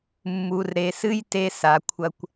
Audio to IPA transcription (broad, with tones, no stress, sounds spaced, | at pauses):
mː u˨ r ɾ e˨ s ɨ˦ j t e˧ s a˨ kʷʰ ɐ˧ kʷ